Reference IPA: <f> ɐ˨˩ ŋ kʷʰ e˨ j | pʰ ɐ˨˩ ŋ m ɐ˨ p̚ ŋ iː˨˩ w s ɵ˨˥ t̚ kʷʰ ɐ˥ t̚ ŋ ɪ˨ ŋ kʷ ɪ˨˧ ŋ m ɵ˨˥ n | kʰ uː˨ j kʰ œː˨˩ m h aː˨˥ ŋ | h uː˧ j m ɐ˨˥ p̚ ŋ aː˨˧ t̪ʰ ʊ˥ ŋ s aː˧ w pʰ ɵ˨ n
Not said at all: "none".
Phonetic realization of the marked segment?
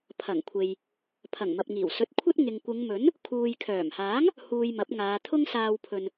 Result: pʰ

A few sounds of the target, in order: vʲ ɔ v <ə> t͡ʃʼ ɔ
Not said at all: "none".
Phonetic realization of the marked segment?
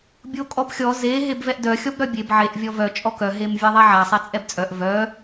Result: œ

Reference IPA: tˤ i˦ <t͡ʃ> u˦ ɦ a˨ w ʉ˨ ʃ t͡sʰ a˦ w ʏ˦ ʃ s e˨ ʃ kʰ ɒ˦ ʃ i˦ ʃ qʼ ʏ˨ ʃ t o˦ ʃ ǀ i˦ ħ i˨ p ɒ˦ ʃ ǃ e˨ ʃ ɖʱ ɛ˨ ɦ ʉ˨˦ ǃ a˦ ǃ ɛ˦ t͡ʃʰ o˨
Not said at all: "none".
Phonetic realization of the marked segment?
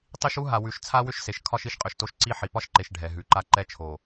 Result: ʃ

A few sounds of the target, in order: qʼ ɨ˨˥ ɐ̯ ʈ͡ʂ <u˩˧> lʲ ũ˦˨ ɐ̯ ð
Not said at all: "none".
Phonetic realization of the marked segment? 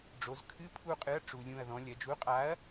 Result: u˩˧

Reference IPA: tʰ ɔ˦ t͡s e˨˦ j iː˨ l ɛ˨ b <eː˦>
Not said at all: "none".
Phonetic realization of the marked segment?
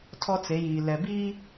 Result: iː˦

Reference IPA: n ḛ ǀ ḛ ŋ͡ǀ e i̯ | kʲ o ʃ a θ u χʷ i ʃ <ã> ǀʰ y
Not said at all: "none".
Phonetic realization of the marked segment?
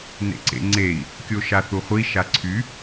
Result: a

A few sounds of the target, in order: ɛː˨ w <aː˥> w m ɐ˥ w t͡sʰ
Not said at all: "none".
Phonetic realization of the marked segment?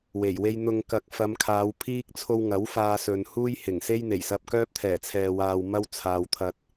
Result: aː˨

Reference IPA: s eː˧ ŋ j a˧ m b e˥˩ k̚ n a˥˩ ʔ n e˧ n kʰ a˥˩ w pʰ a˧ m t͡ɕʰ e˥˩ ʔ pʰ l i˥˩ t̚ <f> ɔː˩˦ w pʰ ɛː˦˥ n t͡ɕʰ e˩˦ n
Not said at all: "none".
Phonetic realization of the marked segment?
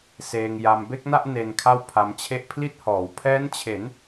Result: h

